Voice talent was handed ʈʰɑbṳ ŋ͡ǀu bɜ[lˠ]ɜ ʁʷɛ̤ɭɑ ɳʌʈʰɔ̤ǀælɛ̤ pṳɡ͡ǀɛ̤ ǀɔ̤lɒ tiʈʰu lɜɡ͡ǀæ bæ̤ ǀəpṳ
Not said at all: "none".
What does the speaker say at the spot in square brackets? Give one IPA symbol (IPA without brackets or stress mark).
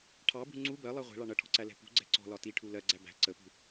lˠ